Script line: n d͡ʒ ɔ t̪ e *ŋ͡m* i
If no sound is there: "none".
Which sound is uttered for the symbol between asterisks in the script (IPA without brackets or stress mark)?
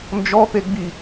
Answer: ɡ͡b